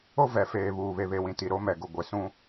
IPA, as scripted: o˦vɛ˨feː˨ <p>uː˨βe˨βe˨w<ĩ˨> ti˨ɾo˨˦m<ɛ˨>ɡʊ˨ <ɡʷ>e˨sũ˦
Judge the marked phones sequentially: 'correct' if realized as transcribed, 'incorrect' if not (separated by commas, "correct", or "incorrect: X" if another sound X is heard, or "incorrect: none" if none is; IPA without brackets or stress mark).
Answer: incorrect: β, correct, correct, correct